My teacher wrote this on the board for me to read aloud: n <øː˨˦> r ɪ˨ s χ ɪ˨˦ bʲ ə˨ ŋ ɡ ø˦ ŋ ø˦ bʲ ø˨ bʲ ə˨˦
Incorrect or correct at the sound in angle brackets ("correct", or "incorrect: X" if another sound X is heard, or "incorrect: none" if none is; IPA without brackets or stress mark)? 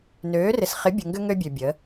correct